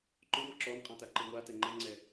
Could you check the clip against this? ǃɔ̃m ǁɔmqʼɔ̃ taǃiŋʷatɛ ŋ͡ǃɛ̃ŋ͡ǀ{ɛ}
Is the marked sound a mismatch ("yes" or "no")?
no